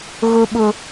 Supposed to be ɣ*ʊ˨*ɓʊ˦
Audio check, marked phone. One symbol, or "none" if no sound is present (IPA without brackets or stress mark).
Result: ʊ˦